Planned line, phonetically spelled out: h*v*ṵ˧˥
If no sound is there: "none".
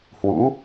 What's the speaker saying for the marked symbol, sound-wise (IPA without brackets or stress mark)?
w